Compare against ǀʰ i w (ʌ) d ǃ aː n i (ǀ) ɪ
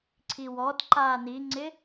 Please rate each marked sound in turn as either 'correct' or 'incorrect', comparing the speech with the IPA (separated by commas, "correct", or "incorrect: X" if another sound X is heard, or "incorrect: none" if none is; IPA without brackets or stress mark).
incorrect: ɔ, incorrect: ŋ͡ǀ